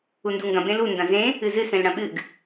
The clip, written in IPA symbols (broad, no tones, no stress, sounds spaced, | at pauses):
u n d u ŋ ɡ ɐ̃ b ẽ l u n d ɐ̃ z ẽ | ɨ z ɨ s ẽ l ɽ ɐ̃ ɓ ɨ ɡ